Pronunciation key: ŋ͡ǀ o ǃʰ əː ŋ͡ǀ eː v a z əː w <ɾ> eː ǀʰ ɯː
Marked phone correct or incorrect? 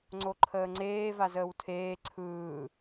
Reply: incorrect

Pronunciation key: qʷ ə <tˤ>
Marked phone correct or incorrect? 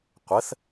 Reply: incorrect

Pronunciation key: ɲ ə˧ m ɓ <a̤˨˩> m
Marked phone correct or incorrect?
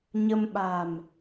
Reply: correct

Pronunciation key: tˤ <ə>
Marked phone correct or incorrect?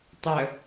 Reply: correct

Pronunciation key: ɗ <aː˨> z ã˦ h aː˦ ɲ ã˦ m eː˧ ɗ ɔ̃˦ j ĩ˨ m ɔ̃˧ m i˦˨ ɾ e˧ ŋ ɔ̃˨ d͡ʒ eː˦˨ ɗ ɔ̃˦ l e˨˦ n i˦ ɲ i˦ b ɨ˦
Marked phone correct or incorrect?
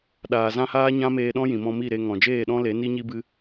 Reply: correct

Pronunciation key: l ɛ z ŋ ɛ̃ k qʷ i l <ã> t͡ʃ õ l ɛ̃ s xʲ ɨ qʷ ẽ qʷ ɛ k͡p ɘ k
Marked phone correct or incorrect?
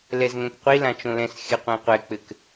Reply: correct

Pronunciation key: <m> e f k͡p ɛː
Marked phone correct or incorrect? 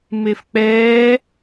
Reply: correct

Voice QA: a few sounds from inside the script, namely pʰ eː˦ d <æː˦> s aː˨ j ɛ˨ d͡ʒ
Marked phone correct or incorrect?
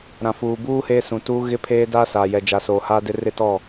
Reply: incorrect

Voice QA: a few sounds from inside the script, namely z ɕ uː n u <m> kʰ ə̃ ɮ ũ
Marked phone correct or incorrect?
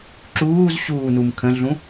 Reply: correct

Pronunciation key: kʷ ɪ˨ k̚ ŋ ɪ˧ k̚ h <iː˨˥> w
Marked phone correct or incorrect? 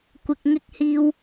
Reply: incorrect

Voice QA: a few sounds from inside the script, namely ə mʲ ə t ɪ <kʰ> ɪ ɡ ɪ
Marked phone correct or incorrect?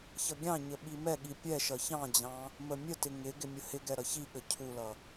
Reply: incorrect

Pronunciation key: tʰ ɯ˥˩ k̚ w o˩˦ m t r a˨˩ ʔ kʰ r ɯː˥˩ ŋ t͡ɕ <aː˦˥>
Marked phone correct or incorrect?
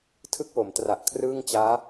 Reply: correct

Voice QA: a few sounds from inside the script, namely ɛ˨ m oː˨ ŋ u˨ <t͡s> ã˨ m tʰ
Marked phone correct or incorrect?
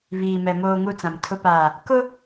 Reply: correct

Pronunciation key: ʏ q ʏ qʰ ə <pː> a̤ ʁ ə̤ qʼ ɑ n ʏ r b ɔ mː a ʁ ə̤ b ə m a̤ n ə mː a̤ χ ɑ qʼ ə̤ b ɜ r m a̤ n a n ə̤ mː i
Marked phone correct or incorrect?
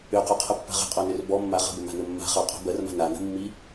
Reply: correct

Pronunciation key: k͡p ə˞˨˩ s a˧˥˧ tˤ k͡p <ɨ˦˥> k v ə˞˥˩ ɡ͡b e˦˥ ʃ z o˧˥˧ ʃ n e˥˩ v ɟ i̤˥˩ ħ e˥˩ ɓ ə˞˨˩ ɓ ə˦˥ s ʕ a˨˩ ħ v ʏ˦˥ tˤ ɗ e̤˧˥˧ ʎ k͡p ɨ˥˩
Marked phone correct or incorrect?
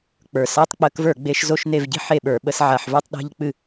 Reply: incorrect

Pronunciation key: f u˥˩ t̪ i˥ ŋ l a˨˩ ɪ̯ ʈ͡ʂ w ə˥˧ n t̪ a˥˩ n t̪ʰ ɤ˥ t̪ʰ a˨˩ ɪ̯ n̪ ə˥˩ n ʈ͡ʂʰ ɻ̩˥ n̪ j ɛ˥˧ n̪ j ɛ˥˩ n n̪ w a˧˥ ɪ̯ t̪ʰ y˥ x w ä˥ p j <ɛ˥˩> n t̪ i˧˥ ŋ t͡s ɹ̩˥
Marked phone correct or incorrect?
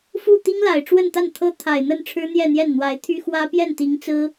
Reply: correct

